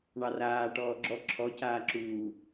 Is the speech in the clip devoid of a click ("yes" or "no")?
no